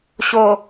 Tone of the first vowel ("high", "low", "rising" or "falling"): low